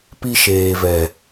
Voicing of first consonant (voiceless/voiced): voiceless